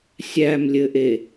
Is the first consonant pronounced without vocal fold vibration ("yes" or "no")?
yes